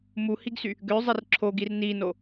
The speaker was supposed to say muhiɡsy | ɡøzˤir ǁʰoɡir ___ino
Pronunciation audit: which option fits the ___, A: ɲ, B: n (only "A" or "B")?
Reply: B